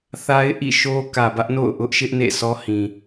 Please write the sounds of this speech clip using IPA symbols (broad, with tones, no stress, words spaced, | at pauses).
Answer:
θa˦ɪ̯ʔḭ˦˨ʃo˦ kä˨bä˦ʔno̰˦˨ʊ̯ ʔʊ˦ʔʃɪ˦ʔ nḛ˦˨sʰɔ˦hĩ˨